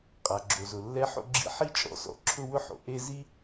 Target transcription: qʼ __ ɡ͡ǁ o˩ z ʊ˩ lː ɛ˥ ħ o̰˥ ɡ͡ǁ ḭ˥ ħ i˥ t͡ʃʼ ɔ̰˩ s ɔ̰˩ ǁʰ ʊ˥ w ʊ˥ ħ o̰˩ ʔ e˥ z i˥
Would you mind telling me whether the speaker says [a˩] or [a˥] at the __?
a˩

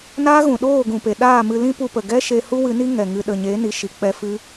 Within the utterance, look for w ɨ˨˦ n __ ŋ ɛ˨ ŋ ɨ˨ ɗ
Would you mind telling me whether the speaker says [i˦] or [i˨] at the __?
i˦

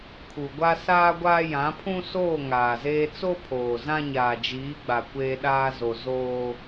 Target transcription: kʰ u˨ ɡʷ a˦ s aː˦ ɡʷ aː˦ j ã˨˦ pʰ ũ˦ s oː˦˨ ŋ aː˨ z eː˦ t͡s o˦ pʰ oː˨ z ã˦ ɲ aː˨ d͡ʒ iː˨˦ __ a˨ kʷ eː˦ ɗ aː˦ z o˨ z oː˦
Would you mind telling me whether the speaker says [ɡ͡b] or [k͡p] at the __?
ɡ͡b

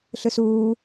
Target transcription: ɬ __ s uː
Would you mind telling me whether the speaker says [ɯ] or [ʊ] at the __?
ɯ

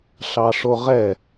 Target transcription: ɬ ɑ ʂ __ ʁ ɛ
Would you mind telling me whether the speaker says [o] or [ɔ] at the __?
o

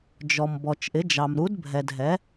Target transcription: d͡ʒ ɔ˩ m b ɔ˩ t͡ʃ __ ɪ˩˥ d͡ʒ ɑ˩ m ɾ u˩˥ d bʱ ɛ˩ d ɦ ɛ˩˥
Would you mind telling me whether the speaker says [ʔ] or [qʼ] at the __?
ʔ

